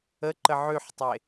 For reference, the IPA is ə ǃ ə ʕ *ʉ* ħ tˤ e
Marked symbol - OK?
yes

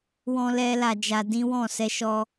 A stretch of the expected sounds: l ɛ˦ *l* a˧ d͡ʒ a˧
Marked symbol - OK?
yes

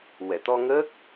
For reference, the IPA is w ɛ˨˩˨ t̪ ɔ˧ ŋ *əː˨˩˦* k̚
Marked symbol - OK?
no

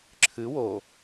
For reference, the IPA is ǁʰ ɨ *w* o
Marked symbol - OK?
yes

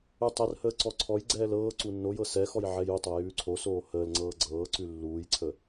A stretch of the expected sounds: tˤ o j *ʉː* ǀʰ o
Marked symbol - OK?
yes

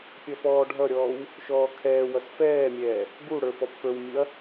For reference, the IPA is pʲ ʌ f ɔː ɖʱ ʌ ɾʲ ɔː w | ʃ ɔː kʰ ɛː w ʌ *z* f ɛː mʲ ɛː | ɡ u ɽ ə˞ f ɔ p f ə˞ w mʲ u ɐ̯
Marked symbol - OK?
no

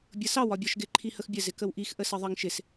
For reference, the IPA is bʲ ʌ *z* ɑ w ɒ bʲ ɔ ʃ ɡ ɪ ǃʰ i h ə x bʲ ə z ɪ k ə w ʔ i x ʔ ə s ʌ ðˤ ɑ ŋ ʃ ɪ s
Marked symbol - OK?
no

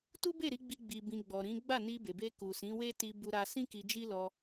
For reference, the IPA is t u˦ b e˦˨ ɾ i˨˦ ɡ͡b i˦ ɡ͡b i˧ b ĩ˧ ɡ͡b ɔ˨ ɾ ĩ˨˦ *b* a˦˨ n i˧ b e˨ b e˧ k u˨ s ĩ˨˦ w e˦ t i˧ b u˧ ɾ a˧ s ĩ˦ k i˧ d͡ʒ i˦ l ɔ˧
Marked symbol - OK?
no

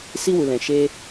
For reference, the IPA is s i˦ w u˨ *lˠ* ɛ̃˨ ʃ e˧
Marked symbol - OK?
no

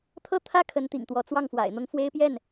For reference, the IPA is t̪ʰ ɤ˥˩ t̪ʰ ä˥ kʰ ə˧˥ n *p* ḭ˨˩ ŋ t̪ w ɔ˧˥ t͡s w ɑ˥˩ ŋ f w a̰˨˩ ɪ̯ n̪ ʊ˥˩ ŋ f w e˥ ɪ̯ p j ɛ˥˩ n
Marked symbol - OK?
no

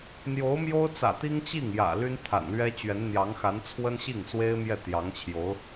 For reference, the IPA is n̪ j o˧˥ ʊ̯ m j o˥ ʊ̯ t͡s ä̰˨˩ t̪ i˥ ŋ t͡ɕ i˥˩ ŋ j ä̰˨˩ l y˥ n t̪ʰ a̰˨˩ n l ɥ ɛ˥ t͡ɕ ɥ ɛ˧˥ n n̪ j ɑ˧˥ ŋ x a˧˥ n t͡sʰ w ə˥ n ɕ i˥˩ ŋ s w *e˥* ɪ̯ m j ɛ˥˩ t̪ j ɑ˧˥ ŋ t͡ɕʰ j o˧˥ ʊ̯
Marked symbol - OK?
yes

